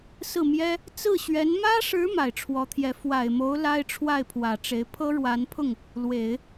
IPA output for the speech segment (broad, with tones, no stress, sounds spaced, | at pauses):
s ɹ̩˥˩ m j ɛ˥ | t͡s ɹ̩˥˩ ɕ ɥ ɛ˧˥ n m ä˥ ʂ ɻ̩˧˥ m a˨˩ ɪ̯ ʈ͡ʂʰ w ɔ˧˥ t̪ʰ j ɛ˧˥ f w a˨˩ ɪ̯ m o˧˥ ʊ̯ l a˥ ɪ̯ ʈ͡ʂʰ w a˥˩ ɪ̯ pʰ w ä˨˩ ʈ͡ʂ e˧˥ ɪ̯ pʰ ɤ˥ ɻ w a˧˥ n pʰ ʊ˥˩ ŋ | l w e˨˩˦ ɪ̯